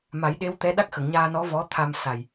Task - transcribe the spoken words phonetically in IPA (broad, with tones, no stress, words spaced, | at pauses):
ma˨˩˦j ɗe˧˥w t̪ɛ˧˥ ɗa˦˥k̚xə˨˩˨ŋɲaː˧nɔ˧˥ vɔ˧˥ t̪ʰa˧m sa˨˩j